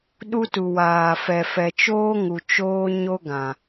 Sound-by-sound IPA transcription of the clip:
ɗ u˦ t u˨ w aː˨ f ɛ˨ f ɛ˨ t͡ʃ oː˦ ŋ u˨ t͡ʃ oː˦ ɲ o˦ ɡ ã˨

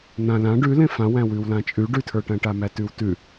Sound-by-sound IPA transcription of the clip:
n̪ ã l ã ɖ ʉ l ẽ f ã w æ̃ w ʉ w l ã t͡ʃʼ ʉ ɖ ʉ tʰ ə˞ ʈ æ̃ ʈ a m æ t ʉ w t ʉ

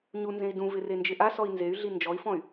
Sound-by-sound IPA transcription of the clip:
ɲ u n z ẽ i̯ d ũ v ɪ r e n d͡ʒ ɪ ʔ a s ɔ i̯ n z e y̯ ɮ i n d͡ʒ ɔ i̯ f ɔ̃ y̯

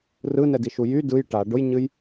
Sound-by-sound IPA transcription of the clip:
r ɯ n ɛ d i ʃ u j y d ɯ j ʈ a ɖ ʊ j ɲ ɨ j

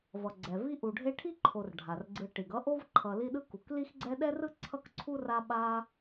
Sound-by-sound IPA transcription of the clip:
v ʌ˩ ɡ͡ǀ ɛ˩ v i˦ ʔ u˨ ɖʱ e˦ ʈʰ i˥ ǃʰ o˨ r ɖʱ a˩ r ɡ͡ǀ ɯ˨ ʈ i˩ ɡ ʌ˥ ʔ o˥ v ǃʰ ʌ˨ l i˦ ɗ ɯ˦ k u˩ k l i˦ x ɡ͡ǀ ɛ˦ ɗ ɛ˥ r ɯ˥ ǀʰ ʌ˥ k ǀʰ u˥ r a˦ ɓ a˦

